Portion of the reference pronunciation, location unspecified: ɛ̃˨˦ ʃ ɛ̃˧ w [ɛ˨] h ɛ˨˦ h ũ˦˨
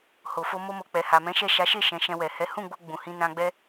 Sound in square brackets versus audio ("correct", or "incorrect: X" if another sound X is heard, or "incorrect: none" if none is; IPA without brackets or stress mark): correct